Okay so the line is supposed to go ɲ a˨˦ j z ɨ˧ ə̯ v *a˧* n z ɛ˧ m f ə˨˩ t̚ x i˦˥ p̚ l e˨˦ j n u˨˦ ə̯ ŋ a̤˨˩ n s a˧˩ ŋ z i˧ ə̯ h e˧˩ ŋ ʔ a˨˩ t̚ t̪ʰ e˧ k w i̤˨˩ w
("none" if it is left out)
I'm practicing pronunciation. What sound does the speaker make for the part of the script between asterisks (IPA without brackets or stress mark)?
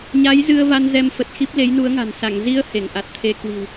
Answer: a˧